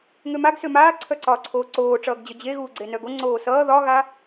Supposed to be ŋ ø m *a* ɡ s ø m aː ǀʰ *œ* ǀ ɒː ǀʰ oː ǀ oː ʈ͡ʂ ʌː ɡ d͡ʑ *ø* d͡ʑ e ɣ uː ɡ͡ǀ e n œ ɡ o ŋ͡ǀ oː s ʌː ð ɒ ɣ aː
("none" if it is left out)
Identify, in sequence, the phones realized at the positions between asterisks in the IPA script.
a, œ, œ

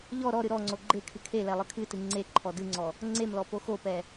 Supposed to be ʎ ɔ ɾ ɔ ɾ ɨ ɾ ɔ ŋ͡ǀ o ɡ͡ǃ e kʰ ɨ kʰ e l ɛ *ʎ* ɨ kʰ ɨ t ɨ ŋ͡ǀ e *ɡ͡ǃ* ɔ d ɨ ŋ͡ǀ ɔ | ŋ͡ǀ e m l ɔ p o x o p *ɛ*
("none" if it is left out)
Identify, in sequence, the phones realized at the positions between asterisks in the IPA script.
lˠ, ǃʰ, ɛ

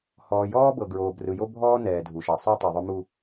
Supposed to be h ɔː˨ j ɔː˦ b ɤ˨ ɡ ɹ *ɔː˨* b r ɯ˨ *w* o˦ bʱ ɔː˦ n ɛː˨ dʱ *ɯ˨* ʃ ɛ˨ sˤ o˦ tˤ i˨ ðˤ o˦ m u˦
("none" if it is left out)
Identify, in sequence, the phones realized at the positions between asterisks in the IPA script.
oː˨, j, u˨

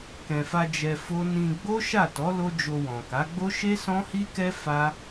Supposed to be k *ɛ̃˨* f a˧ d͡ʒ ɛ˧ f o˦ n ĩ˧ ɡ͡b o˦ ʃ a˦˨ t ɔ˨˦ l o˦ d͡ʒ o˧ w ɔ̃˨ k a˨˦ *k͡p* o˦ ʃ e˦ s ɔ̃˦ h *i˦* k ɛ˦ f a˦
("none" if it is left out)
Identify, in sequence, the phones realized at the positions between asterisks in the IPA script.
ɛ̃˨, ɡ͡b, i˦

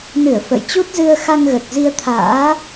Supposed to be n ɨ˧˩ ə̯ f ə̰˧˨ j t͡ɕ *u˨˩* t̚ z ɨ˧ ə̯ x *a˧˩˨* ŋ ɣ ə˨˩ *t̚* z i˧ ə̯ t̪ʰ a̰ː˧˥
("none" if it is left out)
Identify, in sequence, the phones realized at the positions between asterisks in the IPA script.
u˦˥, a˧, t̚

